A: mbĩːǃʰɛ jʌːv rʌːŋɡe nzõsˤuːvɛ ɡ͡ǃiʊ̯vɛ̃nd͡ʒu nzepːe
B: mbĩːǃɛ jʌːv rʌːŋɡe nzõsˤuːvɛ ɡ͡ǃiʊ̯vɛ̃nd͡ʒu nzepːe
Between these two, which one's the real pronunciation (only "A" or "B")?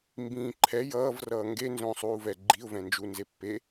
A